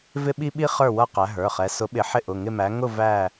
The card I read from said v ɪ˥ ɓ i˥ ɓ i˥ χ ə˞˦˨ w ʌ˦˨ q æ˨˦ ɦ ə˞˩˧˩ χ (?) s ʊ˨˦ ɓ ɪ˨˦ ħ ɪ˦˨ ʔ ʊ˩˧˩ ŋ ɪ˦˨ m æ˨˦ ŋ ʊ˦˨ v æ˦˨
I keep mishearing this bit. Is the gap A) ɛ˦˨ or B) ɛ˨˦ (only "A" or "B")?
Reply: B